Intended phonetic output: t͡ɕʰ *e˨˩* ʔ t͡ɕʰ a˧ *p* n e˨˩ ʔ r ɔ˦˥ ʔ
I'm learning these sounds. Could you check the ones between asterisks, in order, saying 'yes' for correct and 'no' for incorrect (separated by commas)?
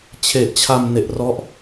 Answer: yes, no